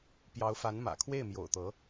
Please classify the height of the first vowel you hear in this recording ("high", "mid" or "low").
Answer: low